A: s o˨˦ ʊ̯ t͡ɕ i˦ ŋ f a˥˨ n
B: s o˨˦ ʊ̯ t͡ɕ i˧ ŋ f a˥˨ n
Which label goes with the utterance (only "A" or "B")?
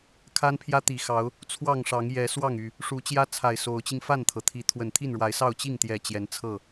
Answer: B